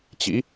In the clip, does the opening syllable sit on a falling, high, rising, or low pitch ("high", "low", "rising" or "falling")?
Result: rising